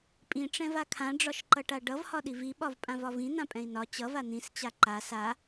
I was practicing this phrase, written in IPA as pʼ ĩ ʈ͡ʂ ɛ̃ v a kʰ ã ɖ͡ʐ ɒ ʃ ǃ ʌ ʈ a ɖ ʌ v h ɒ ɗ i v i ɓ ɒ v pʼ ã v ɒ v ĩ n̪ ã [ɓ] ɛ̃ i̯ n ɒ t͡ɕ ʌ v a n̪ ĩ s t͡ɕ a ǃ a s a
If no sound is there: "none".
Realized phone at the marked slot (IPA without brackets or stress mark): pʼ